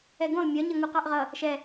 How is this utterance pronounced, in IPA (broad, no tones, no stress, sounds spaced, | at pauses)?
ɛ ɡ ũ lˠ mʲ ɒ ɲ ʌ ŋ u q ɑ ʔ ʁ ʌ | ʃ ɛ